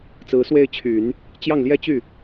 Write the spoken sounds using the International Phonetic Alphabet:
t͡sɹ̩˧˥swe˥˩ɪ̯t͡ɕʰy˨˩˦n | t͡ɕjɑ˥˩ŋljɛ˥ t͡ɕy˥˩

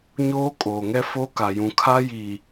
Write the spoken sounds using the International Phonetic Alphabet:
ɲoː˦kʼoː˨ŋɛ˦ fo˦ ka˨jũ˨kʰa˦ ji˨

